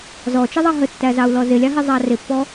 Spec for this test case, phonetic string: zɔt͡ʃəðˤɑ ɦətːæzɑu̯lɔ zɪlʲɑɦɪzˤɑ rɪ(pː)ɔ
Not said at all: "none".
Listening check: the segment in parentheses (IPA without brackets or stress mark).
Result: pː